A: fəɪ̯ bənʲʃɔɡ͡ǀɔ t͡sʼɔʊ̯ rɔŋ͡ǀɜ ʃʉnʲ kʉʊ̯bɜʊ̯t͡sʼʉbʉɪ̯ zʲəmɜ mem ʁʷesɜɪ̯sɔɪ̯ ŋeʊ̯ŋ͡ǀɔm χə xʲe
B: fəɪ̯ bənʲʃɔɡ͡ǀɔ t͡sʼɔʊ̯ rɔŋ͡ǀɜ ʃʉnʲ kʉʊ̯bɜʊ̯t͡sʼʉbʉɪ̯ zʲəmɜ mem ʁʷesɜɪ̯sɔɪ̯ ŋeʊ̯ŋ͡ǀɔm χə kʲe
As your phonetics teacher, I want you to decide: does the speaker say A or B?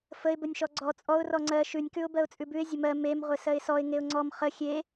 A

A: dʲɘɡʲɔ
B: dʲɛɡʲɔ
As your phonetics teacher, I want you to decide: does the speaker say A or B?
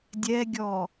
B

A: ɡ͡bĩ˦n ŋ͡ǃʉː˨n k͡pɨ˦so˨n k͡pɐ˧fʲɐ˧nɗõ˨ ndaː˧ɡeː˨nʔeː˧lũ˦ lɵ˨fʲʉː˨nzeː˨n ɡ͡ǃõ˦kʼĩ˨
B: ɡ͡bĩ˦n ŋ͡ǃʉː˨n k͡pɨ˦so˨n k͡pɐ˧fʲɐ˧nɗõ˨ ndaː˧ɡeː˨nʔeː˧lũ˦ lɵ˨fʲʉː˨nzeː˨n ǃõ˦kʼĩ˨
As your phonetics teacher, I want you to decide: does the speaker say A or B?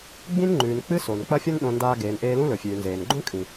A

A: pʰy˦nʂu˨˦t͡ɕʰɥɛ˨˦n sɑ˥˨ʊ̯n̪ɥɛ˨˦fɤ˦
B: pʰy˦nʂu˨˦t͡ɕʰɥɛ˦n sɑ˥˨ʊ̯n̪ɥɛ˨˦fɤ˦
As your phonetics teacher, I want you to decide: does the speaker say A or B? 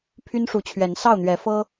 A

